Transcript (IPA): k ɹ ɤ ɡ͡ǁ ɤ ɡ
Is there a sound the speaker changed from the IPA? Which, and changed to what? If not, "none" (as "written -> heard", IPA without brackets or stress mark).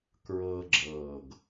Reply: none